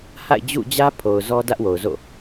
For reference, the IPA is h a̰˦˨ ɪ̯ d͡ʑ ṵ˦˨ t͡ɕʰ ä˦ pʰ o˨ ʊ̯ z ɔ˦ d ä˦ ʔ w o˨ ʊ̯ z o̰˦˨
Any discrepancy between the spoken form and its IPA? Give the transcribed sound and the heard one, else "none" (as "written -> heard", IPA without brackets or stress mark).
t͡ɕʰ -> d͡ʑ